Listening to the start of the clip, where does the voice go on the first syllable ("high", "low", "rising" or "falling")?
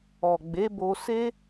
low